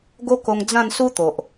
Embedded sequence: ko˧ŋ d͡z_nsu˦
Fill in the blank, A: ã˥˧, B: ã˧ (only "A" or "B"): A